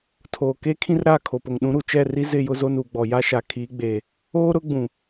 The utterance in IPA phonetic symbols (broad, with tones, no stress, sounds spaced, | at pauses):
tʰ oː˨ k e˦ kʰ ĩ˦ r ɾ a˦˨ kʰ o˨ p o˨ ŋ ɗ ũ˨˦ ɾ u˨ t͡ʃ ɛ˦˨ r i˦ z ɪ˦˨ j ʊ˦ z o˦ n uː˨ ɡ͡b ɔ˨ j a˦ ʃ a˨ kʰ i˨˦ ɡ͡b eː˨ | oː˦ ɾ ʊ˦ ɡ͡b ũ˨